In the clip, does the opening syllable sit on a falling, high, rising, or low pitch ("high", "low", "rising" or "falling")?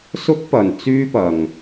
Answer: high